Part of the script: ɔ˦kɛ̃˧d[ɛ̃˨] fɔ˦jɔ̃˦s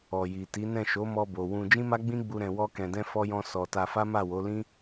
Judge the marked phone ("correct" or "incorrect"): incorrect